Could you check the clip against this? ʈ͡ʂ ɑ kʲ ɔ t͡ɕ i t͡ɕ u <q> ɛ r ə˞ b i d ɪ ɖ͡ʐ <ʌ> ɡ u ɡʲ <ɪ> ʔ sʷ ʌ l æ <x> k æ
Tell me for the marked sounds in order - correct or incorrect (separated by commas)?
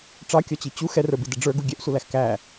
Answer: incorrect, incorrect, incorrect, correct